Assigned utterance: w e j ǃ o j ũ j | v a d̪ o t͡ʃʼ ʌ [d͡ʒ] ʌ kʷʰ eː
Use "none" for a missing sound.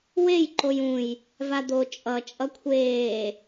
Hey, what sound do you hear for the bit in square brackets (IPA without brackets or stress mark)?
t͡ʃʼ